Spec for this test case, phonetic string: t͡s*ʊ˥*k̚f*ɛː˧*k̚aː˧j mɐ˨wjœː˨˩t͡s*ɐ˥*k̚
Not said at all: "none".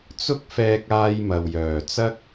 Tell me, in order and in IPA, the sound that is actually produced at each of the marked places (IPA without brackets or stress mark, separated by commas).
ʊ˥, ɛː˧, ɐ˥